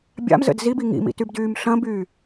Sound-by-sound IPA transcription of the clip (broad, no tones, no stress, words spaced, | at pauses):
bʲa̰mzə̰d zibi ŋḭmḭ tybdyːmɬɐ̃byː